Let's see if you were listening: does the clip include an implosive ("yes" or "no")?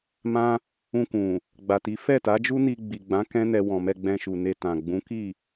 no